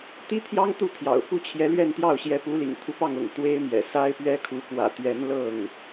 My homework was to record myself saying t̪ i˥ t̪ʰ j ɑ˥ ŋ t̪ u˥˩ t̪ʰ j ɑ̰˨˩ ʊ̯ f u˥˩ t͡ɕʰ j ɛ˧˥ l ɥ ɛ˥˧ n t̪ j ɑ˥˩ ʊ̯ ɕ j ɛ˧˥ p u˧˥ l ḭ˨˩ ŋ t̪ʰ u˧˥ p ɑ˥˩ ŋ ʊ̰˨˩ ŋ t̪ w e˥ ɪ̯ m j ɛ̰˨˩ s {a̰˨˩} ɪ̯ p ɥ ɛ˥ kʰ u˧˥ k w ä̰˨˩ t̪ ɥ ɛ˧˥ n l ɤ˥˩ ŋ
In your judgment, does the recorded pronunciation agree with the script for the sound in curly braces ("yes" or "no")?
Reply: no